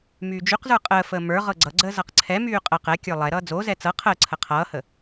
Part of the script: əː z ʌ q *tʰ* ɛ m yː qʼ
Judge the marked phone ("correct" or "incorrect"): incorrect